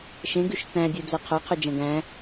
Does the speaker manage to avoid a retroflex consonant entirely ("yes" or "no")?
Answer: yes